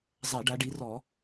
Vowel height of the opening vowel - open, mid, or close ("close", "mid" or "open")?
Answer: open